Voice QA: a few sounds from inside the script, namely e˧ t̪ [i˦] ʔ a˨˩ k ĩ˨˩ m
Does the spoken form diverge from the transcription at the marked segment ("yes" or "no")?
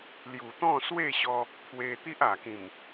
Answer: no